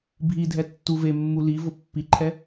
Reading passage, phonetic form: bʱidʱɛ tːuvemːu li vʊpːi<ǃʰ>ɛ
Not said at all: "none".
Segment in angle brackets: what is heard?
ǃʰ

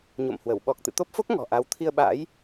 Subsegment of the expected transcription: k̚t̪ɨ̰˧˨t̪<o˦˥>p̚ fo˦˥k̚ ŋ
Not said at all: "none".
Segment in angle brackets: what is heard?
o˦˥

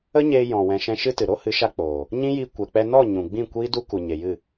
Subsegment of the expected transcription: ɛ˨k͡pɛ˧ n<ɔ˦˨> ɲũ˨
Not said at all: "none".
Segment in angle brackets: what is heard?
ɔ˦˨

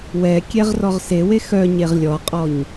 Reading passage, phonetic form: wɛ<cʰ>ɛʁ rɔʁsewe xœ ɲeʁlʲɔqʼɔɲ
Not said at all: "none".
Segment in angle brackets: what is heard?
kʲ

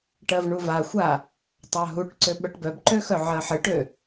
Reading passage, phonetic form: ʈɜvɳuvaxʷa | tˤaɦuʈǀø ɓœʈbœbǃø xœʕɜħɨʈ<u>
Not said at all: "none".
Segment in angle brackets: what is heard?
ø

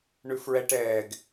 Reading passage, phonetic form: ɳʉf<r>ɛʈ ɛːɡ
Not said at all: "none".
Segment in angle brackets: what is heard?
ɹ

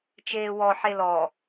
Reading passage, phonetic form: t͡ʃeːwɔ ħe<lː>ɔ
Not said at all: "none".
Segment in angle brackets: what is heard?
l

